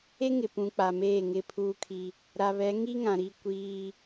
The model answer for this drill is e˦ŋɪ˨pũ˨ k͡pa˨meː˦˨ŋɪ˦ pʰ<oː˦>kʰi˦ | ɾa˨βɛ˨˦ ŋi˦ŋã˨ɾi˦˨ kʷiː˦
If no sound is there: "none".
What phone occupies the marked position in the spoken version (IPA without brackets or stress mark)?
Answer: uː˦